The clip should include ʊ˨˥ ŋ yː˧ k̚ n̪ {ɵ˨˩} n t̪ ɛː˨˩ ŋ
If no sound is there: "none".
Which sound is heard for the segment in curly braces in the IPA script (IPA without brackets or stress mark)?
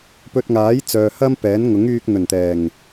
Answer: ɵ˨˩